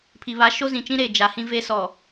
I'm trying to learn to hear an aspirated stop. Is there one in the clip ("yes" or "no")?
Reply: yes